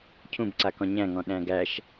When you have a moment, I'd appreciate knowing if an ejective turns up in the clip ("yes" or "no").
no